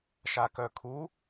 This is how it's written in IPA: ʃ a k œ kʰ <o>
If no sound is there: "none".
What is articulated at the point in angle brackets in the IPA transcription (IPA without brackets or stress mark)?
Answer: u